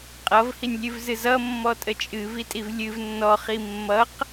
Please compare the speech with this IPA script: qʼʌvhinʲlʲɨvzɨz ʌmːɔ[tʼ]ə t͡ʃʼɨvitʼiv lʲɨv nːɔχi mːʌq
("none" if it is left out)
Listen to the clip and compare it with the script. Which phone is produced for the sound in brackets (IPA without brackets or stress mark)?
tʼ